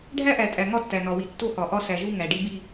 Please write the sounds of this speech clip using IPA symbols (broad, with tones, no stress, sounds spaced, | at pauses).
ɖʱ æ˦ ʔ æ˨ tʼ æ˨ ŋ ɒ˦ tː æ˨ n ɒ˨ w i˨ tː o˦ h ɒ˨ ʔ ɒ˦ s æ˨ ʒ u˦ ŋ æ˨ ɖ i˦ b i˦